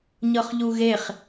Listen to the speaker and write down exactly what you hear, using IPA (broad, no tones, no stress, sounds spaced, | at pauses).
ɲ ɤ χ ʎ u ɣ e χ